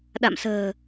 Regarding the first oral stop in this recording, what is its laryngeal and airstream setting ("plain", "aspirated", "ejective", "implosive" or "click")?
implosive